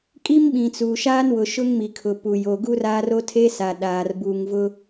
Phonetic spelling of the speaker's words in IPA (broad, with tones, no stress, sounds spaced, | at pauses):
kʼ i˦ m ɓ ĩ˨ t͡s uː˨ ʃ aː˦ n w ʊ˨ ʃ ʊ˦ ŋ m i˨ kʰ ʊ˨ p u˨ j o˨ ɡ u˦ r aː˦ r o˦ tʰ eː˦ s aː˨ ɗ aː˨ r b uː˨ ŋ v ʊ˦